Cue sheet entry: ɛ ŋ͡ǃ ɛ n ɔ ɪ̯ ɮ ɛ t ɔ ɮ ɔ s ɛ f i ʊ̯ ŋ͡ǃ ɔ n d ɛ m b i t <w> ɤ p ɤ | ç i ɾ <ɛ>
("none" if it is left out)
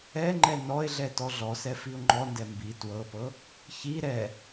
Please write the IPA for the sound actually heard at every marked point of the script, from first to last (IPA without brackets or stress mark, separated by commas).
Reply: w, ɛ